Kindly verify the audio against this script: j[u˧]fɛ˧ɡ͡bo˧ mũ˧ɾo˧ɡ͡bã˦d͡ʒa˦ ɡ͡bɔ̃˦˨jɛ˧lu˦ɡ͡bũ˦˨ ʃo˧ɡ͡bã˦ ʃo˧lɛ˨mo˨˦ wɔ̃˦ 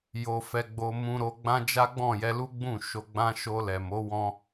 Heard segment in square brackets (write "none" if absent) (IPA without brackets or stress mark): o˧